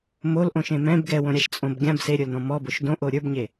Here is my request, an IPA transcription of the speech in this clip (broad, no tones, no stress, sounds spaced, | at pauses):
m o l ʔ õ ʃ ẽ m ɛ̃ b ɡ ɛ w õ ɾʲ a ʃ t͡sʼ õ b ɡʲ ã b s e ɾʲ ə˞ l n ɔ̃ m ɔ b o ʃ d õ ʔ o ɾʲ ə˞ b ɲ e